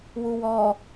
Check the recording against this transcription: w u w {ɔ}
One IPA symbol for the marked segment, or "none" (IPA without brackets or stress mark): ɔ